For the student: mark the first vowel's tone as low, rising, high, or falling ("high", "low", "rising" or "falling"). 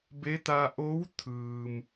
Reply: rising